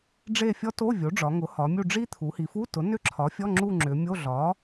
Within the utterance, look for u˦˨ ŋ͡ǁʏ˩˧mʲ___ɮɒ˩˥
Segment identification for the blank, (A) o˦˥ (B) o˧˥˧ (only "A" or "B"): B